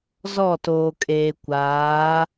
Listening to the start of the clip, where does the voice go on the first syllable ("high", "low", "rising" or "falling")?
falling